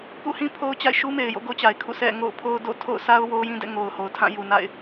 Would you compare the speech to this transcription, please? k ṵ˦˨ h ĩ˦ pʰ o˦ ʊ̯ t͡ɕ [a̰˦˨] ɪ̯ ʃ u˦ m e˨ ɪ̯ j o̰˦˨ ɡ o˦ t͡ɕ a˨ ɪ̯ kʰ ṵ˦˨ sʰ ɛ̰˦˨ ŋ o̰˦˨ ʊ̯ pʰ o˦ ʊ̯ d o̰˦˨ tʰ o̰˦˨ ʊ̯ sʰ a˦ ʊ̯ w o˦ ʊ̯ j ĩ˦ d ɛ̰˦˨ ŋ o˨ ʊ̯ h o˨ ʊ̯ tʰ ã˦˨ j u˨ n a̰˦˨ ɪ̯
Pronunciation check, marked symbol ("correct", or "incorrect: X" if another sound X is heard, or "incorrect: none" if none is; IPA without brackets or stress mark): correct